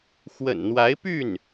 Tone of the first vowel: low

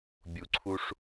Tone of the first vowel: low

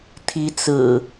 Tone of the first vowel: rising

